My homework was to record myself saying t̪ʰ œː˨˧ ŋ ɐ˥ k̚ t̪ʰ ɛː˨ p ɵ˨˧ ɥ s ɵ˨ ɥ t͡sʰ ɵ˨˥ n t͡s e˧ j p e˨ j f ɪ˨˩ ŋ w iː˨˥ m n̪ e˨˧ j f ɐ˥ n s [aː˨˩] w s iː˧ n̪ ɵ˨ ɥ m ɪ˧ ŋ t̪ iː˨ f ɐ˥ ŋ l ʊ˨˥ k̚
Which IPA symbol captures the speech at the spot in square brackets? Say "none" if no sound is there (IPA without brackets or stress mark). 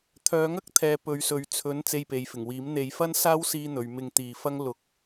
aː˥